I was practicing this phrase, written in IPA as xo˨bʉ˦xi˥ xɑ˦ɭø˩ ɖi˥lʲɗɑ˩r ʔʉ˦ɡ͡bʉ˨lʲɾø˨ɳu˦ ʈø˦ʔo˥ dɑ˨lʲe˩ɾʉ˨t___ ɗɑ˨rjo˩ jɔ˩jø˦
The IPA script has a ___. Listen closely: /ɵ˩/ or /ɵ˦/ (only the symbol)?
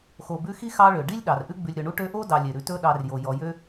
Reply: ɵ˦